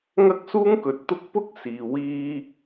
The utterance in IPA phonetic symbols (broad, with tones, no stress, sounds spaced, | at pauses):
ŋ ɐ˥ k̚ s uː˥ ŋ k ɵ˨ t̚ t̪ ʊ˥ k̚ p ʊ˥ k̚ s iː˨ w iː˥